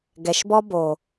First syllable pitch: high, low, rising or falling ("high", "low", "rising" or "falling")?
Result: low